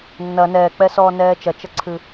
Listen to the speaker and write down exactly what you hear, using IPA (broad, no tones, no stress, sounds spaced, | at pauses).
nː ɐ n ɛː k͡p ɛ s ɔː n ɛː t͡ʃ ɐ t͡ʃ ɐ ǀʰ ɨ